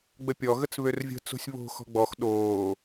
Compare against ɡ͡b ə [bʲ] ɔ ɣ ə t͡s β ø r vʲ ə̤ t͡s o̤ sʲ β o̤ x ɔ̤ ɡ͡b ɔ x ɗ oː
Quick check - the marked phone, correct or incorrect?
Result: incorrect